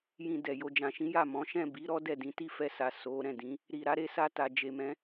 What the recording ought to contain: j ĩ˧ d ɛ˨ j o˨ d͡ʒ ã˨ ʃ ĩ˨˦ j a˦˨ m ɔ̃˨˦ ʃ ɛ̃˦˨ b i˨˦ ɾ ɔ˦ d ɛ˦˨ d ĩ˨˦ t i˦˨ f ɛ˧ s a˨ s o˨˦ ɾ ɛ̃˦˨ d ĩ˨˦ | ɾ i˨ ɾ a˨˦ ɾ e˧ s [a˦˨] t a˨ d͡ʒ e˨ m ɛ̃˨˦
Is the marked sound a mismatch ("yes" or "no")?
yes